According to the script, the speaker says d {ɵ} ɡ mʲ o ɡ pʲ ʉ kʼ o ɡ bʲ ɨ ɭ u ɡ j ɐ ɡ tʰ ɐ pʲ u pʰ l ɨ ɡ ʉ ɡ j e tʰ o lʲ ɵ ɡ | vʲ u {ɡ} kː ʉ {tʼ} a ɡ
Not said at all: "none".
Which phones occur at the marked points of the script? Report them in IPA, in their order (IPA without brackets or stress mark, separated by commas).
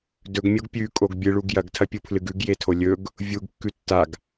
ɵ, ɡ, tː